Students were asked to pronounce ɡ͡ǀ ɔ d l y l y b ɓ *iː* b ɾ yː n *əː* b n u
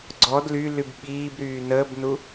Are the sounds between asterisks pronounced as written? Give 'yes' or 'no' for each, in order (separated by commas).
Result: yes, yes